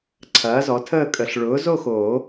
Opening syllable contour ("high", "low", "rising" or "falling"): rising